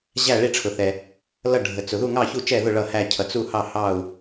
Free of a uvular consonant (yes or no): yes